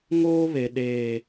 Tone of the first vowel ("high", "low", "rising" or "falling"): high